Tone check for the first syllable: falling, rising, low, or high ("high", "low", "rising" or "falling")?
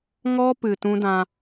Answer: high